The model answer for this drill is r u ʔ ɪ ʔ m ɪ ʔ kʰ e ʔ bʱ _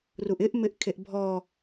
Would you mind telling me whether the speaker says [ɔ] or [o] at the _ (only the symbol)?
ɔ